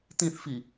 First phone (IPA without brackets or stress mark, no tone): t̪